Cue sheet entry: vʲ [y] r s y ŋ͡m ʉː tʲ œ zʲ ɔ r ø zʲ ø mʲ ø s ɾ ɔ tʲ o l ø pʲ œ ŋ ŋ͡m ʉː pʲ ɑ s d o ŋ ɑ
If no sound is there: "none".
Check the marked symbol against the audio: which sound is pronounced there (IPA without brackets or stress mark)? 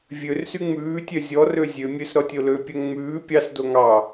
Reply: ø